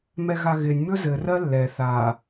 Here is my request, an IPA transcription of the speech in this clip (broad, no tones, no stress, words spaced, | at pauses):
mɛɣaɣɪnʲ mɵzɘ rɜlːɛ θa